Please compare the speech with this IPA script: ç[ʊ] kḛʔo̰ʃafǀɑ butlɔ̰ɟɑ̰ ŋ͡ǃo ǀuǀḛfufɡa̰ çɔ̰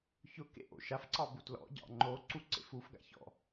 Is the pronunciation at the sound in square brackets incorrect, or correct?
correct